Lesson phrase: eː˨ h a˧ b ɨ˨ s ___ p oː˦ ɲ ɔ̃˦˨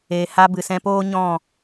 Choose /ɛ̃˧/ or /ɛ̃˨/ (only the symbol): ɛ̃˧